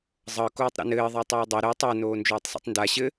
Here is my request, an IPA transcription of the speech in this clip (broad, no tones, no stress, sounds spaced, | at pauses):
zˤ ɤ k oː tˤ ɾ a̰ n ɘː ðˤ ə j tˤ uː dˤ ɛ ɾ ə j tˤ a n oː n d͡ʒ oː tˤ s ḭ tˤ n d a ɕ ɘ